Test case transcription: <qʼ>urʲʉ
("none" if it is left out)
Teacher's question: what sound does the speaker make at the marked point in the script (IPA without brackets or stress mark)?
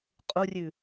qʼ